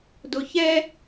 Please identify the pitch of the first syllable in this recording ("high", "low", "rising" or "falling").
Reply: low